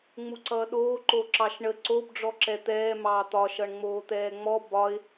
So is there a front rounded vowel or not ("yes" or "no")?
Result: no